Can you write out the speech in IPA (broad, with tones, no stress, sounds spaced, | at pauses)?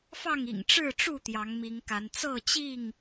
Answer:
f ɑ˥˨ ŋ ḭ˨˩ ŋ ʈ͡ʂ ɻ̩˥˨ ʈ͡ʂ u˥˨ t̪ j ɑ˨˦ ŋ m i˨˦ ŋ k a˨˦ n t͡s ɤ˥˨ t͡ɕ i˥˨ ŋ